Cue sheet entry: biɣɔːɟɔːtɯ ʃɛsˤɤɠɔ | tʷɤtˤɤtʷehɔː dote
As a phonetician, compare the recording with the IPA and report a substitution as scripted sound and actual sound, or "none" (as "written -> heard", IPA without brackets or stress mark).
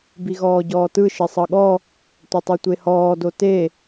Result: ɛ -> e